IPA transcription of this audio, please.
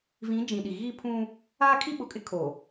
v ĩ˨˦ d͡ʒ ĩ˨ ɗ i˨ ɣ i˦ pʰ ũ˦ | aː˦ kʰ i˦ ɓ ʊ˨ kʼ ɪ˦ kʰ o˨

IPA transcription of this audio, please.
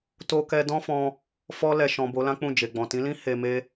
t o˧ k ɛ˧ d ɔ̃˦ f ɔ̃˧ | f ɔ˧ l ɛ˨ ʃ ɔ̃˨ b o˨˦ l ã˦ k͡p ũ˦˨ d͡ʒ e˨ ɡ͡b ɔ̃˨ t ĩ˨˦ l ĩ˦ h e˧ m e˦

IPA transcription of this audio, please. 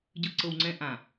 ɟ ɯ˨ ǀ ɤ˨ w ŋ͡ǀ ɛ̃˦ ʔ ã˨

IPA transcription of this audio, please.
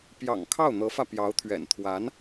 p j ɑ̰˨˩ ŋ kʰ ɑ˥˩ ʊ̯ n̪ ɤ˧˥ f ä˧ p j ɑ˧˥ ʊ̯ t̪ʰ ɥ ɛ̰˨˩ n t̪ʰ w a˧˥ n

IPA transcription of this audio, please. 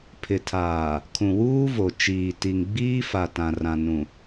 pʰ ɪ˨ tʰ aː˨ | kʰ ũ˨ w uː˦ v o˨ t͡ʃ iː˨ t i˨ ŋ ɡ͡b iː˦ f a˨ t ã˨ r ã˨ n ũ˨

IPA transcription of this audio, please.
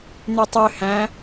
n̪ y tˤ ø h æ̃

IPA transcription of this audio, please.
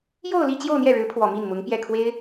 j o˥˧ ʊ̯ l i˥˧ t͡ɕ j o˥˧ ʊ̯ n̪ j ɛ˥˩ ɻ ɻ̩˧˥ pʰ w ɔ˨˩ m i˥˩ n m ʊ˧˥ ŋ p j ɛ˥˩ kʰ w e˥ ɪ̯

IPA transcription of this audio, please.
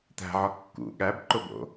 t̪ æ̤ ʕ ɒ kː ṵ ɠ æ b ǃ o b o̰

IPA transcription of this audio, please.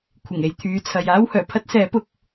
kʷʰ ɪ˨˩ ŋ e˨ j t̪ʰ yː˨˧ t͡sʰ ɐ˨ j aː˥ w h œː˨˩ pʰ ɐ˥ t̚ s ɛː˨˥ p ʊ˨ k̚

